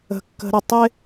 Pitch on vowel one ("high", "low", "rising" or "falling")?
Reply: high